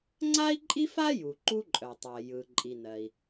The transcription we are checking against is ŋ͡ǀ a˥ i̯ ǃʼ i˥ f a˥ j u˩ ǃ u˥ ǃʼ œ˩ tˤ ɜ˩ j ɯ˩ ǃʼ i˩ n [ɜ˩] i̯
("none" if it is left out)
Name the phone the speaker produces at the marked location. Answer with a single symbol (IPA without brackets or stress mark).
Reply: ɜ˩